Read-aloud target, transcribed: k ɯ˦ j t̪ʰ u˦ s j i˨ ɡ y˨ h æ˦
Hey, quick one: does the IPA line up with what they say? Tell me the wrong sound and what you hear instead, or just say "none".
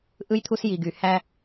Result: k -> ʔ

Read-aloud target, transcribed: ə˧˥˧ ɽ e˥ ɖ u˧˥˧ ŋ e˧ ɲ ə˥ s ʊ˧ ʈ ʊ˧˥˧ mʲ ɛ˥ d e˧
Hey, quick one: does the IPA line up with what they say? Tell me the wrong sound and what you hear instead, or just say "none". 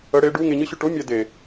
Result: s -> ɕ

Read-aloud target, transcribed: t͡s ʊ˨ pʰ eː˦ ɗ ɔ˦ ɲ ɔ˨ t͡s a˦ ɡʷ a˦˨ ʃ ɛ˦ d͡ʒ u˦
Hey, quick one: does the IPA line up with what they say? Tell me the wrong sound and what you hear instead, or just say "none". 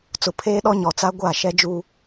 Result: none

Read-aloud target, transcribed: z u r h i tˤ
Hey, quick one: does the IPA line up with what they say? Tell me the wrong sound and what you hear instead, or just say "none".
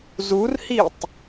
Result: none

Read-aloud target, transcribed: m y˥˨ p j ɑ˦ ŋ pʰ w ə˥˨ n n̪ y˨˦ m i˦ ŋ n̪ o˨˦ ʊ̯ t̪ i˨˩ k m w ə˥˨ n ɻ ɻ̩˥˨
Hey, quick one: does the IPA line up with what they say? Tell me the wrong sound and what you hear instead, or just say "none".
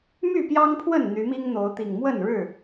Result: k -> ŋ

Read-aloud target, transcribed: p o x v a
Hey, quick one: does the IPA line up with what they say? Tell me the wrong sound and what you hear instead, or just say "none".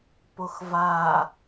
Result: none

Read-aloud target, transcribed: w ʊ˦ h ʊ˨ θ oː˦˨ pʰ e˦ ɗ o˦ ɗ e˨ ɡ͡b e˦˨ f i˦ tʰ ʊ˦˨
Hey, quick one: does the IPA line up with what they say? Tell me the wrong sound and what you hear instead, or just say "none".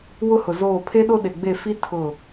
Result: θ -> z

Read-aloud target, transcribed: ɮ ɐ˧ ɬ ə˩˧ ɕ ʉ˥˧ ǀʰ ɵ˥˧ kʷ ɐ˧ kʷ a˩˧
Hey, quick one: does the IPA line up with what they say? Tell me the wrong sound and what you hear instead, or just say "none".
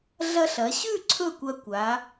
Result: ə˩˧ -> ɐ˩˧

